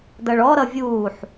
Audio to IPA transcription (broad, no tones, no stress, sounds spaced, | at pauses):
d ʌ ɭ ɔ ɾ ʌ vʲ uː ħ